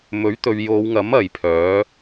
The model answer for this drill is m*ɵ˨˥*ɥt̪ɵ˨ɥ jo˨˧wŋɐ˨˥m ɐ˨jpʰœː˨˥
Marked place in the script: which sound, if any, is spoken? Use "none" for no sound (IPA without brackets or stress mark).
ɵ˨˥